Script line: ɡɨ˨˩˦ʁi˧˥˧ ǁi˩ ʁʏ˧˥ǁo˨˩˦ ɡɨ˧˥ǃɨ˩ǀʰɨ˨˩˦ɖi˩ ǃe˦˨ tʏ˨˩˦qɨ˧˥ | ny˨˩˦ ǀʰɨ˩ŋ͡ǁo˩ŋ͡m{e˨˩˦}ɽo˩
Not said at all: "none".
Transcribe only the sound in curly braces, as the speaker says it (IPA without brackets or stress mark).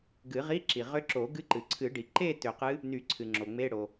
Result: e˧˥˧